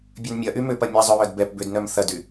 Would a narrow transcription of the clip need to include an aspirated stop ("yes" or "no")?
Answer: no